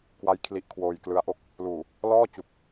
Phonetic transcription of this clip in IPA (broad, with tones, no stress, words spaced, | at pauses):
kwa˦˥j kʰli˦˥ʔkʰwoː˧j klɯ˦˥a̯ʔo˥˩k̚ | luː˨˩ | lɔː˥˩t͡ɕu˨˩k̚